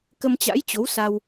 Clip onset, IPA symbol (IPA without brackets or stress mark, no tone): k